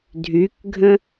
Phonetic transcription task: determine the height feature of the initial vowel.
high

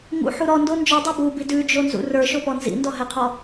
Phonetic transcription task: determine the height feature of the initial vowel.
high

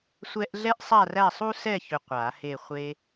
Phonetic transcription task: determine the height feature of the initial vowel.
mid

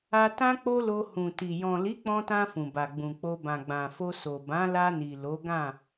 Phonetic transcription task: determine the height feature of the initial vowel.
low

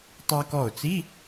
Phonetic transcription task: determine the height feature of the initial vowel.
low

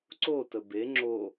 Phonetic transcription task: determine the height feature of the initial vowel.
mid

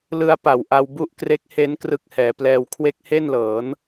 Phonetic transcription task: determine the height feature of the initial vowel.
high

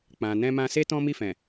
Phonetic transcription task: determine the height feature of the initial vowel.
low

